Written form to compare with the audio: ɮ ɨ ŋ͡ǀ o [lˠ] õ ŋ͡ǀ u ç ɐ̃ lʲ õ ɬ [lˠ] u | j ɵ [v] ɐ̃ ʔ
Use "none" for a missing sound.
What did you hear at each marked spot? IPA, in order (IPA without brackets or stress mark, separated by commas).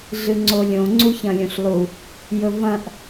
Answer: lʲ, lˠ, v